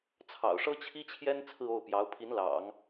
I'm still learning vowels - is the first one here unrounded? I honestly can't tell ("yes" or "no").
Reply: yes